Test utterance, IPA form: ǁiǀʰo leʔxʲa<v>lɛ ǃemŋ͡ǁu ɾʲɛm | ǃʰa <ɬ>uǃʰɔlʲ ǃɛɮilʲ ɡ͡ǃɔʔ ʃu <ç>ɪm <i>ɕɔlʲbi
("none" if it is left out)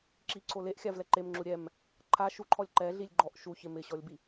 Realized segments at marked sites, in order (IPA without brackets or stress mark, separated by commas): v, ʃ, ç, ɪ